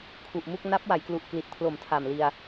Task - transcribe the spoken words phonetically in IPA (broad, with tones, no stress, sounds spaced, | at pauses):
kʰ u˨˩ ʔ m u˥˩ k̚ n a˦˥ p̚ w a˩˦ j k l u˨˩ ʔ k l i˨˩ t̚ pʰ l o˨˩ m tʰ a˨˩ m l i˧ a̯